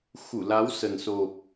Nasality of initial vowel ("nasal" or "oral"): oral